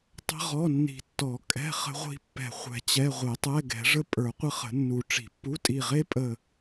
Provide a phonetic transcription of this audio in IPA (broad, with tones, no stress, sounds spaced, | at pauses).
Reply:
tˤ ə̤˥ ʁ ɔ˧˥˧ nː i̤˧˩ tː ɔ˨˩˦ kʼ ɛ̤˧˥˧ χ ə̤˥ ʁʷ i̤˥ pː ɛ̤˧˩ χʷ ɛ̤˧˩ t͡ɕ ɛ˧˥˧ ʁʷ e˨˩˦ tˤ ɛ˧˥˧ ɡ ɛ̤˨˩˦ ʐ ə˥ pʼ ə˞˨˩˦ qʷ ə˥ χ ə̤˨˩˦ nː u˨˩˦ ʈ͡ʂ i̤˨˩˦ pː u˧˥˧ tʼ i˧˩ ʁ e˥ pʼ ə˧˩